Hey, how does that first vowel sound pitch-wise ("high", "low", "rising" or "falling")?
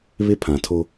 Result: high